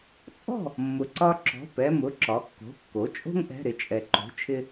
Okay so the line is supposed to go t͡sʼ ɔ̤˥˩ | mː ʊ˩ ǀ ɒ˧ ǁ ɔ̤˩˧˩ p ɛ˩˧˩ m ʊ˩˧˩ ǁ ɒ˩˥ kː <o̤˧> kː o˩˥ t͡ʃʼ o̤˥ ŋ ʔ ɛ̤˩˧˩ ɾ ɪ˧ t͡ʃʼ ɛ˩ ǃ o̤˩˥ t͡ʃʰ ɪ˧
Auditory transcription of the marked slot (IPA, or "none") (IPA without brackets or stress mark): o̤˩˧˩